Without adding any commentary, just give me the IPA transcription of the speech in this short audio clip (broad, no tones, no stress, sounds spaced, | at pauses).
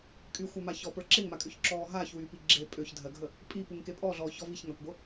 kʼ y xʷ a m a ç ɔ p ə˞ ǁ e ŋ m a kʼ ø ç ǁ ɔː ɦ aː ç w yː p i ɡ͡ǁ e pʼ ø ç dʱ ɜ ɡʱ ə | pʼ i p u ŋ k e pʼ ɔ ɮ ɔː ç ɔ v i ç ŋ a kʷ ɡʷ ə